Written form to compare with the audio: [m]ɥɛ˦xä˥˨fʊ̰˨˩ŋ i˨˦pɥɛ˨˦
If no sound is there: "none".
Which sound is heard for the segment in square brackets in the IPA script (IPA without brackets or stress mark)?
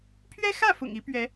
pʰ